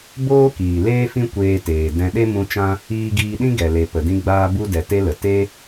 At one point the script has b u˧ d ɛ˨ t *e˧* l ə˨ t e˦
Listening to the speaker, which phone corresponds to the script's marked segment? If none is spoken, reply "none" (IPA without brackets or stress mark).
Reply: e˧